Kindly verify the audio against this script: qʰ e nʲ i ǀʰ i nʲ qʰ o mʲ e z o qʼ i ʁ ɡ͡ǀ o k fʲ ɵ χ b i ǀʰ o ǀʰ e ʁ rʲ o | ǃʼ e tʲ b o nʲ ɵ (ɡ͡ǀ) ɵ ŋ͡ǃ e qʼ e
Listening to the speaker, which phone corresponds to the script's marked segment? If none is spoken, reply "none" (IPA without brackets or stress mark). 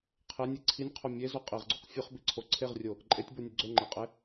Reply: ɡ͡ǀ